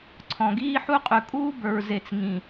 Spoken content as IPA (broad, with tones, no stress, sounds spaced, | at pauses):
ǀʰ ɔ̃˨ ɡ iː˦ ħ u˦ qʼ ʉ˨ kʼ uː˦ b ə˞˨ ɹ z e˨ t͡s ŋ ĩ˨